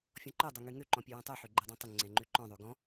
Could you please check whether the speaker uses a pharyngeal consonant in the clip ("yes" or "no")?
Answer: yes